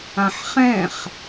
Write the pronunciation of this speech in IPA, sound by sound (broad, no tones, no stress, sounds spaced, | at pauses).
ã ħ χ ɛ̃ χ